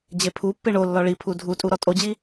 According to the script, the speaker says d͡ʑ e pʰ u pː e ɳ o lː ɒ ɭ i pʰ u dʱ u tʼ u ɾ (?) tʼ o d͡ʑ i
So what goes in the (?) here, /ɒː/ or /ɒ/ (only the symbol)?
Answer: ɒ